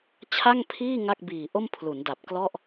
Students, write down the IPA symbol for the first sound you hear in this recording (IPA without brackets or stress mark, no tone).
t͡ɕʰ